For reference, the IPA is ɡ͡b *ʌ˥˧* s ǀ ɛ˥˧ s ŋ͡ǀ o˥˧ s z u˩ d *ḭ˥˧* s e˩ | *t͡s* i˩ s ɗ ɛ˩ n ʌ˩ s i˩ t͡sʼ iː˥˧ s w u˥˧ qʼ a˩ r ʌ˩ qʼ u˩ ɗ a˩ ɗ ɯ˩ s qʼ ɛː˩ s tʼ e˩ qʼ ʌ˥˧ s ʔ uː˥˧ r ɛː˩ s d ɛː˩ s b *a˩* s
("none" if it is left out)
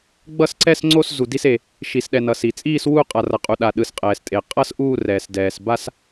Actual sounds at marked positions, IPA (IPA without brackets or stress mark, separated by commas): ʌ˥˧, i˥˧, ʃ, a˥˧